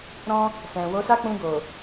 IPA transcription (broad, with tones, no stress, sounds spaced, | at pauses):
ɾ ɔ̃˧ | s ɛ̃˨ w o˨˦ s a˦ k͡p ũ˧ ɡ o˨